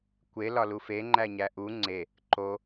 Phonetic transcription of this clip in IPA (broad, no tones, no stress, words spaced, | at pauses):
kʷe lɒlufe ŋ͡ǃæɲæʔu ŋ͡ǀe | ǃo